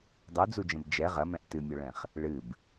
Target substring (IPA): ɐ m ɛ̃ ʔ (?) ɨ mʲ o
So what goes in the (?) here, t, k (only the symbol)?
t